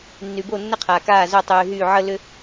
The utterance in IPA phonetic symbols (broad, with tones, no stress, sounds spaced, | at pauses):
nː y˨ b o˦˨ nː ə˦ qʰ aː˨ k aː˦˨ z ʏ˦˨ tˤ yː˨ ɦ y˦˨ ʕ ə˦ l ʏ˦